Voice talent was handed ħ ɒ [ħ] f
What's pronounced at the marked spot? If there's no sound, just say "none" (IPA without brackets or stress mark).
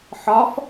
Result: none